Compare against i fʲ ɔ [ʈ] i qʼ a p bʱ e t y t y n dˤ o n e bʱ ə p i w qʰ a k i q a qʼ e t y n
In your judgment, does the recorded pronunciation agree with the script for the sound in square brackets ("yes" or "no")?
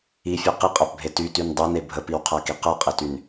no